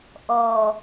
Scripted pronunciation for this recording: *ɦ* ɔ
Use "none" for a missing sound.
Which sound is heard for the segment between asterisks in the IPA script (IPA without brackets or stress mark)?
ʔ